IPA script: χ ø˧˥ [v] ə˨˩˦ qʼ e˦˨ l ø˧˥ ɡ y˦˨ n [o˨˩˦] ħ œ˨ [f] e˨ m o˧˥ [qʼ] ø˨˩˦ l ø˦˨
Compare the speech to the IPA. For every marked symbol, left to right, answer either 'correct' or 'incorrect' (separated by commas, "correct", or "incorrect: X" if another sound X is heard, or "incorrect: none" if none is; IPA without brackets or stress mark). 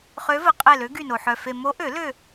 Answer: correct, incorrect: o˨, correct, incorrect: ʔ